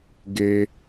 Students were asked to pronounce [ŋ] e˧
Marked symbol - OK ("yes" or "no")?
no